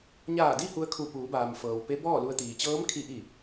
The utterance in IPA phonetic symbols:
ɲaː˧˩di˥˨ hu˧ə̯kʰu˧˩ puː˩˧baː˩m fɤː˩w pe˧˥bɔː˥˨lu˧ə̯t̪iː˩ t͡ɕɤː˧˥mkʰi˧ ʔi˧˩

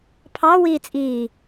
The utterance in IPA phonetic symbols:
pʰɑ wiːt͡sʼiː

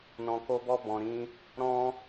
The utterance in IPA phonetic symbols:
nɔ̃˨ko˧bɔ˧ bɔ̃˨ɾĩ˧ | ɾɔ̃˦

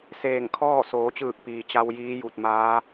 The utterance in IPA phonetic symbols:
seː˧˩ŋ kʰɔː˥˨soː˩˧t͡ɕɯː˧˩k̚piː˩ t͡ɕa˧w jiː˧˥ju˧˩t̚maː˧˥

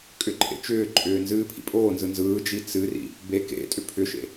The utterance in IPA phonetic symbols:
kʼʏǃʼḛ t͡ʃʏːǃʼʏː nzɨːpʰḭpʼoːnzɯ nzɯːd͡ʒi t͡sɨrḭ | be kḛtʼʏ pʰʏʃḛ

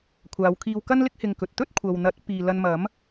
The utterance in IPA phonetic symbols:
kʷʰaː˨˧wkʰiː˧wkɐ˥nlɪ˥k̚ hɪ˧ŋkɵ˨t̚ t̪ɵ˥t̚kʷʰɐ˨wn̪ɐ˨˥t̚ piː˧ lɐ˧nmɐ˨˥m

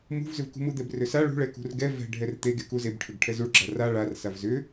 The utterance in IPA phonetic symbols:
mṳvzʏvkṳ mud̪ɛbrʏsa ɭṳɭɛkṳr ɡɛ vɛ̤ ɖʱɛrt̪eɡeku zeb ʈʰʏɡʈʰɛzuɭɡ͡ǁa ra ɭar savzʏ

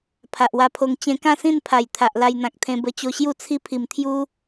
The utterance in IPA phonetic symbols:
pʰa˨ʔwa˧pʰo˧ŋ t͡ɕẽ˧kã˥˧sĩ˥˧npʰa˨˩j t̪ʰa˨ʔla˧jn̪ã˨k̚t̪ʰẽ˧ bə˧ t͡ɕo˧ɕju˥˧ t͡sʰi˦pʰi˨˩mt̪ʰju˦

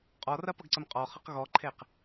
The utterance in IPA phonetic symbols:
qʼɔrɐpʌɡǀəm qʼɔχʌq ɣɔǃʰeq

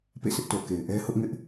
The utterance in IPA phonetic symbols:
pḛ˦˨sɪ˦ʔ to˨ke˨ɪ̯ ʔɛ˦hʊ˦ʔŋɪ˦ʔ

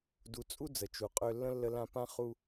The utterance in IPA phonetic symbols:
du˨t͡sʼu˥d͡zə˩ t͡ʃu˨qʼø˦ lːə̃˥lːə˦lã˦ pã˥ χu˥

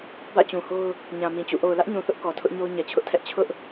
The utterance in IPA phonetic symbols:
bä̰˦˨t͡ɕũ˨ho˦ʊ̯ | ɲã˨ mĩ˨t͡ɕṵ˦˨ ʔo˨ʊ̯lä˦ʔɲũ˨θʊ˦ʔ kɔ˨ tʰʊ˦ʔɲo˦ʊ̯ ɲɛ˨t͡ɕʰʊ˦ʔtʰɛ˦ʔ t͡ɕʰʊ˦ʔ

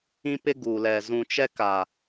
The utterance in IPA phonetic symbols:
ĩ˦pɪ˦ ɡuː˨lɛ˨ zũ˨t͡ʃɛ˦ka˨

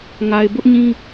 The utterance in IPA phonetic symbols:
ŋa˨ɪ̯bʊ˦ʔɲĩ˦

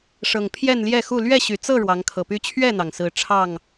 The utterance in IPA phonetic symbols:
ʂɤ˨˩ŋ pʰjɛ˥˨nljɛ˥˨xu˥˨ lɥɛ˥˨ ɕy˨˩t͡sɤ˥˨ ɻwɑ˨˦ŋkʰɤ˨˩py˦ t͡ɕʰɥɛ˥˨n̪ɑ˩ŋsɹ̩˨˦ ʈ͡ʂʰɑ˥˨ŋ

